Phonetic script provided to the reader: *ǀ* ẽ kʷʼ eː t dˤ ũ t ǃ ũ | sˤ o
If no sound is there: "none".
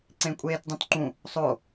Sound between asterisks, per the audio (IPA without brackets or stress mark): ǀ